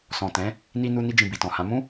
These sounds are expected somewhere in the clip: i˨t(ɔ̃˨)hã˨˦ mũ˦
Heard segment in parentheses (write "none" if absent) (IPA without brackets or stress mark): ɔ̃˨